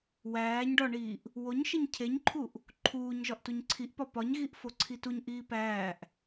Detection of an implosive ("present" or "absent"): absent